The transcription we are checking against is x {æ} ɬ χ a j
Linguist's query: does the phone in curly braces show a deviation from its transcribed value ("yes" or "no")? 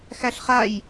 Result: no